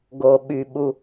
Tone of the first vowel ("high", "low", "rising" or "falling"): low